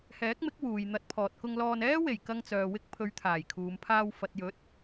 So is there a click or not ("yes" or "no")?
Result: no